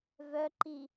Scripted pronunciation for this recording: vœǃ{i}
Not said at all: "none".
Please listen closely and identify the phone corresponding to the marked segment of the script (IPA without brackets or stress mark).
i